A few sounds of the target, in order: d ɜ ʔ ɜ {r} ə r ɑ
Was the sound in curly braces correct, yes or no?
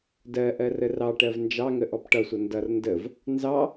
yes